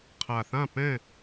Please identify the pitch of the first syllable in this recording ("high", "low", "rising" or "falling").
low